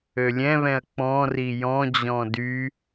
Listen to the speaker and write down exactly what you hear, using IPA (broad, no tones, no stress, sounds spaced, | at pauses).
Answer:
ø lʲ ɛ̃ β ɛ̃ ɐ̯ k͡p ɔ̃ r i j ɔ̃ d͡ʑ ɔ̃ d y